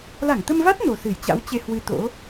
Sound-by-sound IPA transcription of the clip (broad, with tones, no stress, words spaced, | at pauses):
la˧˩ŋt̪ə˧mva˦˥t̚ no˨˩sɨ˧˩jt͡ɕa̰˧˥wt͡ɕe˧ hwɨ˧t̪o̰˧˥